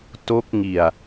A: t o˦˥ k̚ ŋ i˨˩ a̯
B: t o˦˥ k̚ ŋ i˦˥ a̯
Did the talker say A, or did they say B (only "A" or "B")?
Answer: A